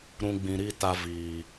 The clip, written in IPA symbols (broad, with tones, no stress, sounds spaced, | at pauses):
ɾ ũ˧ ɡ͡b ĩ˨ ɾ i˦˨ t a˧ v iː˨